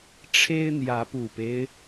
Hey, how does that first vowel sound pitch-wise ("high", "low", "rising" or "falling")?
high